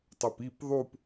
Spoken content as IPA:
tˤøpip ðˤup

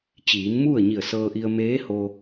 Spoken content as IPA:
t͡ɕiː˩˧nmu˥˨ə̯ ɲi˧˩ə̯ sɤː˧ʔi˧ə̯meː˧˥ ho˧

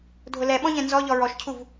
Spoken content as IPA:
dʱʊlɛɓɔ̃ ʎɛ̃nzɔʎɔ ɹɔʃcʰuv

